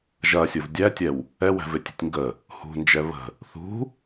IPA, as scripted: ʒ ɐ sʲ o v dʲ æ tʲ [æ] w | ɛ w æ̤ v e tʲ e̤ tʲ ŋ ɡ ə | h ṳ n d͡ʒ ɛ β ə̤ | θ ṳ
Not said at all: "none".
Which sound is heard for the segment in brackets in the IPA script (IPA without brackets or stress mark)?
ɛ